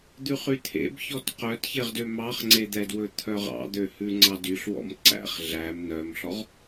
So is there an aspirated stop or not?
yes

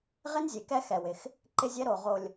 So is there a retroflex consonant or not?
no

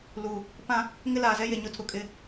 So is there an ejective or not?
yes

